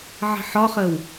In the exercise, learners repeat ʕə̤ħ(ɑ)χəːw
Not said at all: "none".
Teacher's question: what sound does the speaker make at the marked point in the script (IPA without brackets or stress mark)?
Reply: ɒ